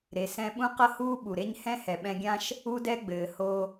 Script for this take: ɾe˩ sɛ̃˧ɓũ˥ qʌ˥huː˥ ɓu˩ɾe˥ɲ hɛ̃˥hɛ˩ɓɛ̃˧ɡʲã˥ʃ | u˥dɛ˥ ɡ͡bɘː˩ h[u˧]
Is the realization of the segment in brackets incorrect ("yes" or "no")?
yes